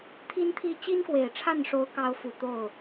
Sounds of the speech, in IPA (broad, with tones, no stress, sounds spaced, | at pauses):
t̪ʰ i˥ n t̪ʰ i˥˩ t͡ɕ i˥ n k w e˨˩ ɪ̯ ʈ͡ʂʰ a˥˩ n ʂ o˧˥ ʊ̯ k ɑ˧˥ ʊ̯ f u˨˩ t̪ o˥˩ ʊ̯